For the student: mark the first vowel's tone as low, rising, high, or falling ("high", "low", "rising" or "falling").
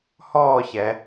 falling